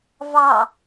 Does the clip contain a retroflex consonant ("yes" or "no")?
no